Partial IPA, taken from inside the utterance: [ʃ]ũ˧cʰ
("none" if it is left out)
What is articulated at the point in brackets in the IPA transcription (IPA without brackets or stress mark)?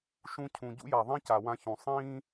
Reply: ʃ